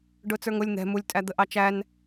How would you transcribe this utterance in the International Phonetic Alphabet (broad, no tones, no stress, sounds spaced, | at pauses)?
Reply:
ɖ ʊ t͡s ə˞ ŋ ʊ lʲ n̪ ɛ̤ m u lʲ tʼ æ d̪ ə ʔ ɑ t͡ʃ æ n